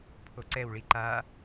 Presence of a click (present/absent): present